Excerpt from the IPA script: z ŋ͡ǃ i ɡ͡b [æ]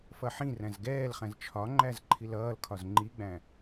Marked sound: incorrect: æ̃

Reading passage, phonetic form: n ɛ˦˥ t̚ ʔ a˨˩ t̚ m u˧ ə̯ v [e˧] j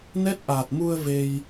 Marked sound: correct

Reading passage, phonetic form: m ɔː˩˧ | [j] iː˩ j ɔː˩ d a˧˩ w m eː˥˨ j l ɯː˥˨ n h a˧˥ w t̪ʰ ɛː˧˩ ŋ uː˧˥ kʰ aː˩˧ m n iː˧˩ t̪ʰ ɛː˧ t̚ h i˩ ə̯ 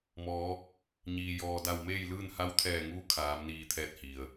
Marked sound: incorrect: ɲ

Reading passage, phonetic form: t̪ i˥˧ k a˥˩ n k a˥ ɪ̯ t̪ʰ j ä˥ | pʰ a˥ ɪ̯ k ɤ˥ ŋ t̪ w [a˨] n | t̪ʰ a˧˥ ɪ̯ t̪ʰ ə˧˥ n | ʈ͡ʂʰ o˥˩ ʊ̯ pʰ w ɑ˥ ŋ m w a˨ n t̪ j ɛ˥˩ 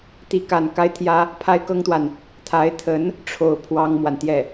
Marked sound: correct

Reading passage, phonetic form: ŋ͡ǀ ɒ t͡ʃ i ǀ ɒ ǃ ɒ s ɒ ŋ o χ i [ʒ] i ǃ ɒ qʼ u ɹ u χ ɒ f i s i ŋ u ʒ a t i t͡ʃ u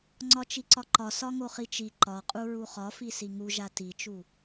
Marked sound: incorrect: t͡ʃ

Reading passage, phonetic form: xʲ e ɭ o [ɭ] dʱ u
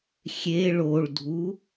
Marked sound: correct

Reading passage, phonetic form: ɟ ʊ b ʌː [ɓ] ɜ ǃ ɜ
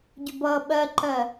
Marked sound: correct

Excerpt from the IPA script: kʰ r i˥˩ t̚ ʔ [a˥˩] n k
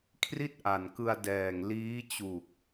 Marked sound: incorrect: a˨˩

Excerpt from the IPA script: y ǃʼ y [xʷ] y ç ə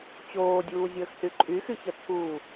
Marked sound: incorrect: x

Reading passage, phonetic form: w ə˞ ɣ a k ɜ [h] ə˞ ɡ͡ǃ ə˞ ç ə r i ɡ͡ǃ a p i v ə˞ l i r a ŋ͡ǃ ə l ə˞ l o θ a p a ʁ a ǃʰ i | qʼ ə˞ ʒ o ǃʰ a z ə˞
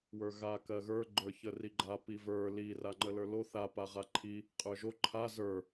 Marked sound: incorrect: ɣ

